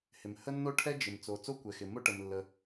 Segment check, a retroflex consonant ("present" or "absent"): present